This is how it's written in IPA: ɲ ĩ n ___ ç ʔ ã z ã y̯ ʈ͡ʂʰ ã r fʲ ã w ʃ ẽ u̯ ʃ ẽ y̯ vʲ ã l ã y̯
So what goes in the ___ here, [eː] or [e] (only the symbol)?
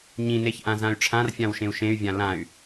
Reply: e